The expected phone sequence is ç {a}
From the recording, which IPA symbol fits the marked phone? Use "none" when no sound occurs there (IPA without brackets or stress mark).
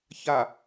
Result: a